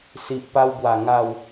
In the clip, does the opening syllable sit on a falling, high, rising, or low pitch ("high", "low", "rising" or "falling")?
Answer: low